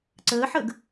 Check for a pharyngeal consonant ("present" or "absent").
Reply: present